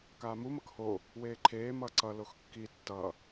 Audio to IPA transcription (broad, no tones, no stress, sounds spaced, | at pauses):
k aː m u m ʌ k h o | w eː ǃʰ eː m ʌː ǀ ʌ l o x kː i tː ʌ